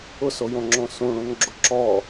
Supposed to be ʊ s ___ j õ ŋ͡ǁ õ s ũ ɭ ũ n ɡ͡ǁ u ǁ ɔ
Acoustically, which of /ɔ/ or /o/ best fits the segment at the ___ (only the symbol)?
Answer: o